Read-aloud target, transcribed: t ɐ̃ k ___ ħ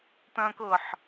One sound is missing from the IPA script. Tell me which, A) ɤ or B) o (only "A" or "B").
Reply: A